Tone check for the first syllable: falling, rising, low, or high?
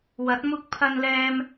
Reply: rising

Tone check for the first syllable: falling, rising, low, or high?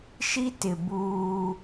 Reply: high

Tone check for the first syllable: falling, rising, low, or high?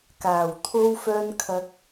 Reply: low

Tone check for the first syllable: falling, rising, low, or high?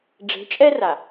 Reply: rising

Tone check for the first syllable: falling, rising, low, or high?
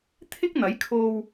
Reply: high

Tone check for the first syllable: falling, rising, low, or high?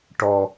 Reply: low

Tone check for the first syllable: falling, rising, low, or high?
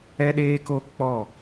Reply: high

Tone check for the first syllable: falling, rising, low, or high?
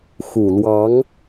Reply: low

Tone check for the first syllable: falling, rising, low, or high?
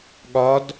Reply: rising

